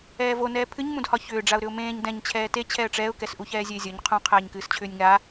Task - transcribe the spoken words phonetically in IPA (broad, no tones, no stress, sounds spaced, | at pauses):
ɛː v o n ɛː pʰ ɨ ɲ m ũ d h ɒ ç ʏː ɖ͡ʐ a ʊ̯ ɾ ʏ ʊ̯ m ẽː ɲ d ɛ̃ ɲ t͡ɕʰ ɛː t e t͡ɕʰ ɛ ə̯ ʈ͡ʂ ɛː ʊ̯ k ɛ s ʔ u ç ɛː zʲ ɛ ɪ̯ zʲ ɒ ɲ qʰ ũ qʰ ɛː ɲ k ɨː s t͡ɕʰ ʏː nʲ ŋ a